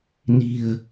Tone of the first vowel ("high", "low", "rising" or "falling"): low